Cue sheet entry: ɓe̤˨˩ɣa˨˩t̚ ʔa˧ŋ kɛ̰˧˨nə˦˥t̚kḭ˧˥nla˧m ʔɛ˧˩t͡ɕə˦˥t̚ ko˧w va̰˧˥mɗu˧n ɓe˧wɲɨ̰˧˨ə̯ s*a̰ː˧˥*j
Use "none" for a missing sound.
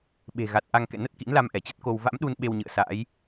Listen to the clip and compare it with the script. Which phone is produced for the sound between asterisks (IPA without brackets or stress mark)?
a̰ː˧˥